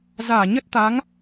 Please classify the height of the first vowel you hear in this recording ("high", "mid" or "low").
low